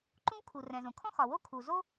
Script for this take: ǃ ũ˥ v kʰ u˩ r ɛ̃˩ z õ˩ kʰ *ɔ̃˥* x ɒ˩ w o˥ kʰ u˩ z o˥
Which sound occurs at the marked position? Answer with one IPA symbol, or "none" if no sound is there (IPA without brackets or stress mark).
ɔ̃˥